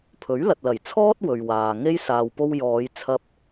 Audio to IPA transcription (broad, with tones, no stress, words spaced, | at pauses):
pʰɵ˨˥ɥlɐ˨t̚lɐ˨˩jt͡sʰɔː˥t̚ wɵ˨ɥwaː˨ ŋe˧jsaː˨w po˧wjɔː˨˧jt͡sʰɐ˧p̚